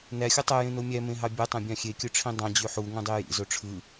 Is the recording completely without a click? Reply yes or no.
yes